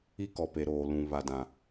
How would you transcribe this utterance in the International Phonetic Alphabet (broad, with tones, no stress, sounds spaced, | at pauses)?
i˦ k ɔ˨ p e˨ ɾ oː˨ l ũ˨ β a˨ d ã˨